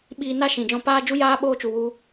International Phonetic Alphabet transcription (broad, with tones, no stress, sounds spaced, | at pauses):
ɓ iː˧ n a˦ ʃ ĩ˨ d͡ʒ ɔ̃˧ p aː˦ d͡ʒ u˦ j aː˦ ɓ oː˧ t͡ʃ u˨ w u˦